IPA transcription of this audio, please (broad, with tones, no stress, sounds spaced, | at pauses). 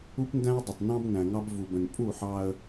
u˦ p n d æ̃˦ ɪ̯ dˤ ə˨ tˤ n ɑ̃˦ b n æ̃˨ ŋ ɑ˦ b v u˨ b ə̃˨ n pʼ u˦˨ ħ ɑ˦ ə̯